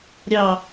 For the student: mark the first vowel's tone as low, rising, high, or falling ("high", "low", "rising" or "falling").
falling